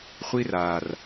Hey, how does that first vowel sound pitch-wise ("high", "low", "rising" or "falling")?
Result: high